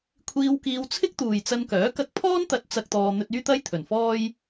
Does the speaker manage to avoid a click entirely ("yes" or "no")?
yes